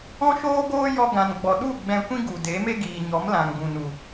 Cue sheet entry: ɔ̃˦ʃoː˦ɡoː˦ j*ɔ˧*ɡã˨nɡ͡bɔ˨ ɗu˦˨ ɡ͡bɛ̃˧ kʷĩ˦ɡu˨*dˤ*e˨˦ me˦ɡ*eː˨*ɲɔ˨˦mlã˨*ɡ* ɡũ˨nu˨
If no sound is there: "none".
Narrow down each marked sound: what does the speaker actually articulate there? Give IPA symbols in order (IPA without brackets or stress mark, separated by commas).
ɔ˧, d, iː˨, ŋ